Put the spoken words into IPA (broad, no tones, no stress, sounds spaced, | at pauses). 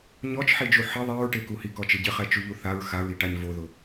ɲ ɔ t͡ʃ ħ i d͡ʒ u ħ ɪ ðˤ i ɹ ʈ e k u h i k ɔ t͡ʃ ɪ ɟ ɪ χ ɛ t͡ʃ u ʎ u θ a ɹ x a ɹ i ʈ a ɲ v o ð ʊ